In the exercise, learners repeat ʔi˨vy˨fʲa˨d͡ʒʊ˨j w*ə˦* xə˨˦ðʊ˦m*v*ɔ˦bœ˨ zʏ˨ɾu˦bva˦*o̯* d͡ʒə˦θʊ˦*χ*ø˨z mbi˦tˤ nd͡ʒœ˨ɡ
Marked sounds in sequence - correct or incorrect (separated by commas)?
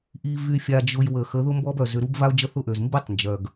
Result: incorrect, incorrect, correct, incorrect